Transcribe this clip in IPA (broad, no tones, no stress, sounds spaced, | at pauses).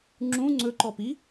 ŋ͡ǁ ũ ŋ͡ǀ ɵ ǃ ɔ p i